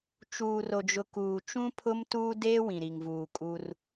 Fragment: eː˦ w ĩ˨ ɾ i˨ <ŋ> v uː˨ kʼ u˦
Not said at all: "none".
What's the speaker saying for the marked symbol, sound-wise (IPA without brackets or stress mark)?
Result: ŋ